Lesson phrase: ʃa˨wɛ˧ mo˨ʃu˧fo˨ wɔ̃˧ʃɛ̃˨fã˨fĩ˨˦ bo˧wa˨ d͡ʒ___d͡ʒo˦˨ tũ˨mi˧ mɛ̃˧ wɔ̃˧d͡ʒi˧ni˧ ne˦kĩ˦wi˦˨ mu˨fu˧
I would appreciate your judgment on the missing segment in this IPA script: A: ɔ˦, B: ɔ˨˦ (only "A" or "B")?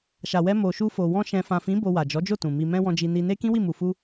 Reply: B